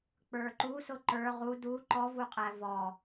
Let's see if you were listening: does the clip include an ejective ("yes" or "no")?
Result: yes